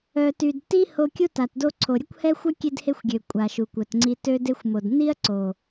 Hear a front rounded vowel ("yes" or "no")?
yes